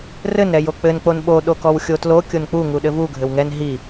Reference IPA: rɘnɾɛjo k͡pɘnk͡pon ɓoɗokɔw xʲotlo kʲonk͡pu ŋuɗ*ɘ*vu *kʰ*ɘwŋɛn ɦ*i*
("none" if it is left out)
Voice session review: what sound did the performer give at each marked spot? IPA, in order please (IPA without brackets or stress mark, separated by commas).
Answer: ɘ, ɡʱ, i